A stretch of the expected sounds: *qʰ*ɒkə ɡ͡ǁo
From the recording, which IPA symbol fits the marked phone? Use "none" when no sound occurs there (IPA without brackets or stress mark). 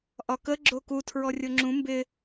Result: ʔ